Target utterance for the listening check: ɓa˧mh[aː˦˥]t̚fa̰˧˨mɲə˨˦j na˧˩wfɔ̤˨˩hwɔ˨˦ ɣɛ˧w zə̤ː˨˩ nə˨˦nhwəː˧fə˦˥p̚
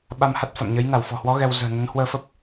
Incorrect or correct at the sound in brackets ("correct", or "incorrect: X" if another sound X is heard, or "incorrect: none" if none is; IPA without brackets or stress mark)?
incorrect: a˦˥